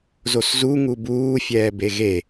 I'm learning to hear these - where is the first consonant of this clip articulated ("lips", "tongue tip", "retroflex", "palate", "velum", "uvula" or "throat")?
tongue tip